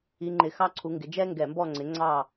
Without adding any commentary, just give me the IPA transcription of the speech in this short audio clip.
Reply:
i˨˦ ŋ͡ǃ ɪ˧˩˧ x ɑ˦˨ ǀʰ u˨˦ ŋ ɡ ɪ˨˦ d͡ʒ ɛ˦ ŋ ɡ ɛ˧˩˧ m b ɔ˦˨ ŋ͡ǀ ɪ˨˦ ŋ͡ǀ ɑ˦˨

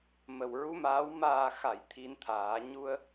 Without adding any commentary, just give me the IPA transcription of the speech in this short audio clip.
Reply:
m ə˨˩ w ɹ u˧˥ m aː˧˥ w m aː˨˩ x a˨˩˨ j t̪ʰ i˧ n t̪ʰ aː˨˩˦ ɲ u˧ ə̯

